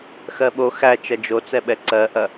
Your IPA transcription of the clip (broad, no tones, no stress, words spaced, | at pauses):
xɜɓo xæt͡ʃɐ d͡ʒot͡sɛɓɛ ǀɜʔɐ